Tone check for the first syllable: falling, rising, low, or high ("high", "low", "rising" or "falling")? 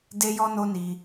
high